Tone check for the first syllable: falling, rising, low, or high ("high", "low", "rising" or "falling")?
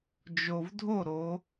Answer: low